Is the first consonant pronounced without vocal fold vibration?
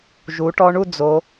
no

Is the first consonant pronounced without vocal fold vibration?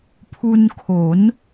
yes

